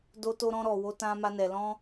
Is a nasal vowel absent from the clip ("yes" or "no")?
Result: no